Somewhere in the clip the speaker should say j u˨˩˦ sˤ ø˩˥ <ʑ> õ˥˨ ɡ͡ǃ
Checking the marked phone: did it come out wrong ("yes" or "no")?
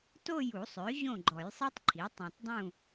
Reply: no